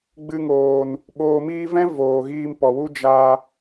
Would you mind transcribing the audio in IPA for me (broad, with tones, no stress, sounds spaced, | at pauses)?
ɡ͡b ɨ˧ ŋ oː˨ n | ɓ oː˨ m iː˧ v ɛ̃˦ v oː˨ ɣ iː˧ m p ɔ˨ w u˦ d͡ʒ a˧